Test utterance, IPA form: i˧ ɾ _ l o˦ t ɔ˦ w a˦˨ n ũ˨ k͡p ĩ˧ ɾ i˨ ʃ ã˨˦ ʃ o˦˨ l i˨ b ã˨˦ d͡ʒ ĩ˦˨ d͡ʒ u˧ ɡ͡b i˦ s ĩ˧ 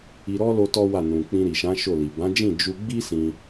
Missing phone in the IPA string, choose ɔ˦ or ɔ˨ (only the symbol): ɔ˦